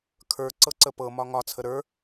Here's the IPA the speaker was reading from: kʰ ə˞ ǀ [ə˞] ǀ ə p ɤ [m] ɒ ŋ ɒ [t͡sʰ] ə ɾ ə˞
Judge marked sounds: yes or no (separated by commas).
no, yes, yes